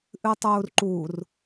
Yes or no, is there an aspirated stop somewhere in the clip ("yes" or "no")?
no